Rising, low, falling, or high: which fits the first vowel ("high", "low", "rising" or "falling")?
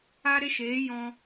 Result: high